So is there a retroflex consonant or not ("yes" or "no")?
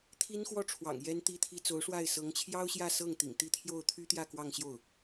yes